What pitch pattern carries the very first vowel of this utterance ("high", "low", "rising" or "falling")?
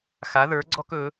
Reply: rising